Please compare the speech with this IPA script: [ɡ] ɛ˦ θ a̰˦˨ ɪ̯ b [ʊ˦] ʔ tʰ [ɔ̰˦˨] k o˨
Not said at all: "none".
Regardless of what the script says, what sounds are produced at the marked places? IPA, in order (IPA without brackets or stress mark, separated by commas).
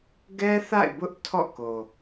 ɡ, ʊ˦, ɔ̰˦˨